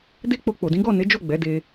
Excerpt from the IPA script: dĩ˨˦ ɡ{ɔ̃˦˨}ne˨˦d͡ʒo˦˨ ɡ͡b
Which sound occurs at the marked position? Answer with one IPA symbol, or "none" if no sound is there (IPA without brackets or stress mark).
ɔ˦˨